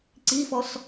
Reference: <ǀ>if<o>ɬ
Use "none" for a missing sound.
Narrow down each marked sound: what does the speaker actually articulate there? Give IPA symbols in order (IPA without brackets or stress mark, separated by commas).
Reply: ǀ, ɔ